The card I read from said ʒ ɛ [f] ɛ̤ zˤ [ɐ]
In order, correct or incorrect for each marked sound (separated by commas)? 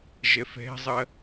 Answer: correct, correct